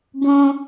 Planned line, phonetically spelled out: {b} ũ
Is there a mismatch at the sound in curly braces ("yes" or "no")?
no